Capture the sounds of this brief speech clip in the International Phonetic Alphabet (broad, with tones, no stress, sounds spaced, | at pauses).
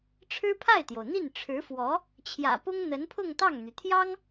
ʈ͡ʂʰ ɻ̩˥ pʰ a˥˩ ɪ̯ t̪ j o˩ ʊ̯ n̪ i˥˩ n ʈ͡ʂʰ ɻ̩˧˥ f w ɔ˧˥ | t͡ɕʰ j ä̰˨˩ p ʊ˥ ŋ n̪ ə˧˥ n pʰ ʊ˥˧ ŋ t̪ ɑ˥˩ ŋ n̪ y˩ t̪ʰ j ɑ˥ ŋ